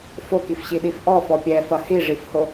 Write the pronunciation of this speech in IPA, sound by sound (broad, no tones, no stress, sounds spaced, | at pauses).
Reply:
f o k i f ɕ i ɗ i f ʔ ɔ f ɔ pʲ ɛ f ɐ h i ʐ i f h o